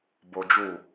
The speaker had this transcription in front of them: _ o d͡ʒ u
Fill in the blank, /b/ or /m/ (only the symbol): b